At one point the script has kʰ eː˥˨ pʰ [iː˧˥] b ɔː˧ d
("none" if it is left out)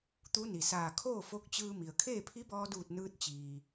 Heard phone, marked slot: i˧˥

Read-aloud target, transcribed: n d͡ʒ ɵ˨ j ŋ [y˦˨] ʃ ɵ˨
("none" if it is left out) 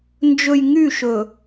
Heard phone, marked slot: y˦˨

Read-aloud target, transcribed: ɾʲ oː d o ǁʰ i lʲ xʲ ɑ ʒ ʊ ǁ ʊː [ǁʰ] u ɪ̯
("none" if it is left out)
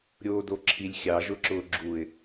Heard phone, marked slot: ɡ͡ǁ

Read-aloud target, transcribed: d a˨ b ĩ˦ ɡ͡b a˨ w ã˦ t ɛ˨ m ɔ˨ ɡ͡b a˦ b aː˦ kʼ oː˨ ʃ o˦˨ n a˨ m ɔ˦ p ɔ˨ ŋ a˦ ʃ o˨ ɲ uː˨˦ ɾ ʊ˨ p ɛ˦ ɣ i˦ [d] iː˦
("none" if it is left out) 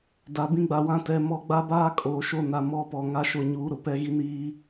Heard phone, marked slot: n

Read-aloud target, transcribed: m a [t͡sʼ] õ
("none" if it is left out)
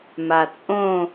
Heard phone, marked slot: t͡sʼ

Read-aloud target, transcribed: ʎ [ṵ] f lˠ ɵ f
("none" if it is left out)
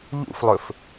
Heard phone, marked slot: ṵ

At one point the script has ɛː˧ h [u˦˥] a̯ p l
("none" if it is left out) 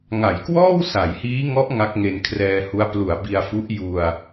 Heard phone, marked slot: u˦˥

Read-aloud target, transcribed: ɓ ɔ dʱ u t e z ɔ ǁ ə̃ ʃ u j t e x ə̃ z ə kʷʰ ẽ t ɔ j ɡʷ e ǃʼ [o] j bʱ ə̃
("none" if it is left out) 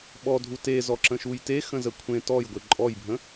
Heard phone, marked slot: ɔ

